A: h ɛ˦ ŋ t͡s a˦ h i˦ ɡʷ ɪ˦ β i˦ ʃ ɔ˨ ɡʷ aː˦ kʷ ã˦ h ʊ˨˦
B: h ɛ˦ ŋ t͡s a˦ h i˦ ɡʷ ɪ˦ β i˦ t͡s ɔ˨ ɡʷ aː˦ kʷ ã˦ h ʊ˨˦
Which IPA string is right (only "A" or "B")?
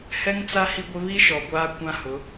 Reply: A